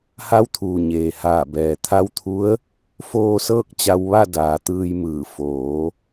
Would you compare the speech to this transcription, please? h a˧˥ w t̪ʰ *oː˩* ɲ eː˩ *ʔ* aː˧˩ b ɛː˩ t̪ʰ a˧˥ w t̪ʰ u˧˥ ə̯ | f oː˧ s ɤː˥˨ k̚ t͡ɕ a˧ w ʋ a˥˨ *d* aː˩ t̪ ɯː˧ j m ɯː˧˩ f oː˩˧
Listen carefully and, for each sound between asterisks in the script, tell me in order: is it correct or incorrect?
incorrect: uː˩, incorrect: h, correct

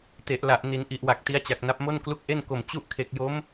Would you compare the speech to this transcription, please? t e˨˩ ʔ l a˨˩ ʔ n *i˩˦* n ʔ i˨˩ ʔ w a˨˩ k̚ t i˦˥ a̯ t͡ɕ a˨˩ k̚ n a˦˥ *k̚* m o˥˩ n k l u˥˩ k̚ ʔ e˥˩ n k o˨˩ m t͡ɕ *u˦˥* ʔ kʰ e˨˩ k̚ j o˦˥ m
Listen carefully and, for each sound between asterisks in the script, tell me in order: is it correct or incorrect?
correct, incorrect: p̚, correct

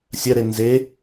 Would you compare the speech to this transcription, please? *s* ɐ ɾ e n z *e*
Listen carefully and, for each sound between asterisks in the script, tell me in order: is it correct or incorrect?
incorrect: sʲ, correct

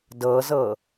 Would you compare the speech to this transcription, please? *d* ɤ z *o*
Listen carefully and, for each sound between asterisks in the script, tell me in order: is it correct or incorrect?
correct, incorrect: ɤ

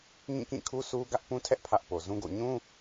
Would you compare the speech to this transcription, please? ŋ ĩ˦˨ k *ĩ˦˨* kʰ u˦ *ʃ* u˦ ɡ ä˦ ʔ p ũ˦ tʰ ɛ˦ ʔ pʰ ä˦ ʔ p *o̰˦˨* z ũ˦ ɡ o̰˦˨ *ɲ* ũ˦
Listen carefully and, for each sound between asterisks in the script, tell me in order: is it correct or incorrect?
correct, incorrect: s, incorrect: o˨, correct

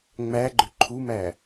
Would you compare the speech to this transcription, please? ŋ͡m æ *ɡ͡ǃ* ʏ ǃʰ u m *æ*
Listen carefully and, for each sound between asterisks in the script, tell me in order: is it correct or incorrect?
correct, correct

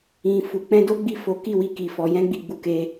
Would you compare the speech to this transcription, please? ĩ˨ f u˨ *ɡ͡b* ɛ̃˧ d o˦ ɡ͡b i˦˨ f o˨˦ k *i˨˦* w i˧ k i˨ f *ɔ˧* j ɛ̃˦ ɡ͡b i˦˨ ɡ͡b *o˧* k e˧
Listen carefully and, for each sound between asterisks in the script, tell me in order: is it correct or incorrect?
incorrect: k͡p, incorrect: i˦˨, correct, incorrect: u˧

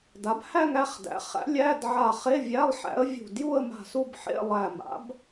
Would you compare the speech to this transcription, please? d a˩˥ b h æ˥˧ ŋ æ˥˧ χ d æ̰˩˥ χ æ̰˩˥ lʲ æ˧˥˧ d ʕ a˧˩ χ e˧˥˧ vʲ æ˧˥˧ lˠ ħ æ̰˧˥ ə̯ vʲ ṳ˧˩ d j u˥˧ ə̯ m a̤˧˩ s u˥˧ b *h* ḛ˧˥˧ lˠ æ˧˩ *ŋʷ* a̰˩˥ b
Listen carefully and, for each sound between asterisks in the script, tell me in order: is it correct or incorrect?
incorrect: ħ, incorrect: m

